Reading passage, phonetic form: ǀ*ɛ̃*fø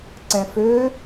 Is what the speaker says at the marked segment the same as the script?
yes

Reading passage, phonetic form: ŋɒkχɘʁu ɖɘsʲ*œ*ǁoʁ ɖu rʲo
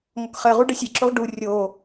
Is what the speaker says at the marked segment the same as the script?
no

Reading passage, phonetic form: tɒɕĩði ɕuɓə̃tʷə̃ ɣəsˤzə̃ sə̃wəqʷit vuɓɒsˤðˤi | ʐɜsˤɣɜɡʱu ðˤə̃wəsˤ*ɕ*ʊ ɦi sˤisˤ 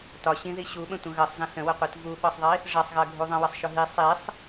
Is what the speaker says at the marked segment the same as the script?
no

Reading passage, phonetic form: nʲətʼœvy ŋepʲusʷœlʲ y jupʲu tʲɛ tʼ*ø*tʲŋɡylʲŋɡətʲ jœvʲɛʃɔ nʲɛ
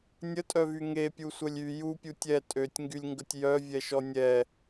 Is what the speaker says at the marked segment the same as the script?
yes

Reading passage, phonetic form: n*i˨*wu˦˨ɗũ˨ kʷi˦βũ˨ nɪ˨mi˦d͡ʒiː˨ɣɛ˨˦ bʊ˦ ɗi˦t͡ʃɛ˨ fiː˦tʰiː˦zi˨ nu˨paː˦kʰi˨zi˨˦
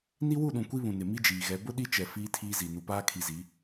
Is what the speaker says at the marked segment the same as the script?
no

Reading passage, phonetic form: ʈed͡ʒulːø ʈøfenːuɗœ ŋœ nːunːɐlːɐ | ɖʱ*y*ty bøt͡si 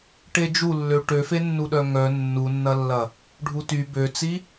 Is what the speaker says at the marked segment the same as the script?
no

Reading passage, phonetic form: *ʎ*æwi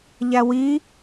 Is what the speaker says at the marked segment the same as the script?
yes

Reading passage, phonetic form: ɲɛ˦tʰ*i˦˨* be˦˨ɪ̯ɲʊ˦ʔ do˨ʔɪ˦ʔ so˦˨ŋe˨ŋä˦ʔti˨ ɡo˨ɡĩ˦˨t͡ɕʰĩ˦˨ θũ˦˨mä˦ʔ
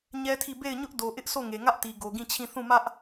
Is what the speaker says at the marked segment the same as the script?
yes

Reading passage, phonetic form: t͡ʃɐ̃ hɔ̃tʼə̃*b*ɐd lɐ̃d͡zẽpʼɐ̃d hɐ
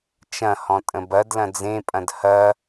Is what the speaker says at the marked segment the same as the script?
yes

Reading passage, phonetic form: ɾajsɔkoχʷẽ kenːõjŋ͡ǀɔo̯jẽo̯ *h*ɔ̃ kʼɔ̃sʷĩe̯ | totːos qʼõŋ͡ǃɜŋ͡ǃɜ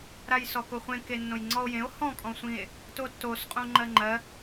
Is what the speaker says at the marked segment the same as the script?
yes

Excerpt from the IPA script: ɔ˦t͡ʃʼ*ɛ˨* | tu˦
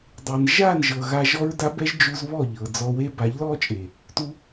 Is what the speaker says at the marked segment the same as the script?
no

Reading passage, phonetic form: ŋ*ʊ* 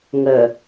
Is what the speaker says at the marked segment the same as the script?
no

